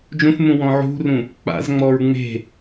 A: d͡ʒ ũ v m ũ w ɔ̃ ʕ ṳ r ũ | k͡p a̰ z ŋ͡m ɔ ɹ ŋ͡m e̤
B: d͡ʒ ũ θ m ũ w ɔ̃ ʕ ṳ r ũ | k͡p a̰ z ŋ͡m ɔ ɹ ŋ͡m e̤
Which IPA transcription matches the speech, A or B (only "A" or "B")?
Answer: B